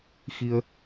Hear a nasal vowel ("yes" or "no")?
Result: no